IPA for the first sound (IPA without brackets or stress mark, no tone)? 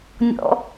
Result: nʲ